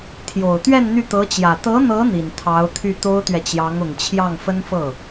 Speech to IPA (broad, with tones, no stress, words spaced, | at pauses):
t̪ʰjo˨˩ʊ̯t̪ɥɛ˥˧n n̪y˥˩t̪ɤ˧˥t͡ɕjä˨˩ t̪ɤ˧˥n̪ɤ˧˥ n̪i˨˩nt̪ʰɑ˧˥ʊ̯t̪ʰy˥˩ t̪o˥ʊ̯t̪ɥɛ˨t͡ɕjɑ˧˥ŋ ʊ˨˩ŋt͡ɕʰjɑ˥˩ŋfə˥nfɤ˥˩